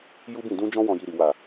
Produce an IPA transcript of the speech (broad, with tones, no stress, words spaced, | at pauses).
ju˦bĩ˦˨ dũ˧d͡ʒɔ̃˧ wɔ̃˨ji˨ɾi˨ wa˨